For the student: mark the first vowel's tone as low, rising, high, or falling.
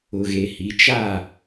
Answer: low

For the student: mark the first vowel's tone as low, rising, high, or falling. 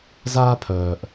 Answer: high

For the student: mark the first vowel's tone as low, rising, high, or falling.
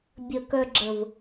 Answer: low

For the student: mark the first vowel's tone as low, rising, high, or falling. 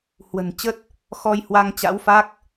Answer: low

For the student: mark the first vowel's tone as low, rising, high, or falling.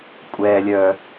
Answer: low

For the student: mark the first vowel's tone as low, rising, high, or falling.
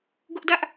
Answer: high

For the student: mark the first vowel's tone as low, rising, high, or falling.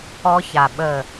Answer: high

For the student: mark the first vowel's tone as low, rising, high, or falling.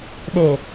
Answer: low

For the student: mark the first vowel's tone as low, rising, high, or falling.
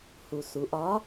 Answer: low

